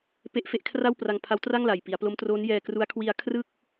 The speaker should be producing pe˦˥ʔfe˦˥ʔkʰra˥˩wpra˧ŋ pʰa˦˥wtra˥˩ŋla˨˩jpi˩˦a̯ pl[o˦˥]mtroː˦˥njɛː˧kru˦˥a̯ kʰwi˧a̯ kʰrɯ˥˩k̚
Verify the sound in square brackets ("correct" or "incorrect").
correct